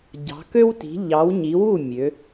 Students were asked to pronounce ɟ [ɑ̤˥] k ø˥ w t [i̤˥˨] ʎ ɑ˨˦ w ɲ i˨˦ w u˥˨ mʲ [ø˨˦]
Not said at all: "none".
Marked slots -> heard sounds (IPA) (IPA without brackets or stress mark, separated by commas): ɑ̤˨˦, i̤˨˦, ø˨˦